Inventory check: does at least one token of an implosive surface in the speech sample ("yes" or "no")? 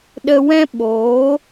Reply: yes